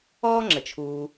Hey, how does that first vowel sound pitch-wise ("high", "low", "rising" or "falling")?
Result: high